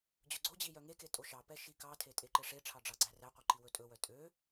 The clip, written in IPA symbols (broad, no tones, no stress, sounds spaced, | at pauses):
d͡ʑ ɵ ɡ͡ǀ o d͡ʑ i j œ ŋ e k e tʼ o ʃ ɑ p ɛ ʃ i k ɑ tʰ e tʼ e ǃ e ʂ e ʈ͡ʂʰ ɑ ɖ͡ʐ ɑ ɡ͡ǀ æ r æ qʷ i ǃ i w ɵ tʼ ɵ w œ tʼ ø